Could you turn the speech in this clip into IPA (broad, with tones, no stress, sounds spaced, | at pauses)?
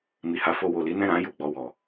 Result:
m i˨ h a˨˦ f o˧ w o˨ l i˨˦ n ɛ̃˦˨ ɾ ã˨˦ j u˦˨ ɡ͡b ɔ˧ w ɔ˨